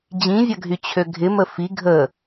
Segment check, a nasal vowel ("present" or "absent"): present